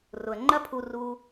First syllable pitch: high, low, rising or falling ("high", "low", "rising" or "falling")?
low